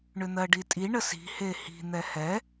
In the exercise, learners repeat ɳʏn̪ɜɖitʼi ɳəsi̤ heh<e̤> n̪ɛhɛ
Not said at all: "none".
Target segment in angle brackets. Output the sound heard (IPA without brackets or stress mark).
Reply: i̤